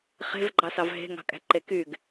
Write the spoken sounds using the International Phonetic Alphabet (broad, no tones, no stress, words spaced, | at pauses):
χe̤vɡ͡ǃɑsɑv ɦe̤ŋɑ̤kʼæ̤ǃe kyɡ